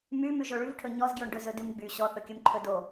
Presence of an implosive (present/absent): absent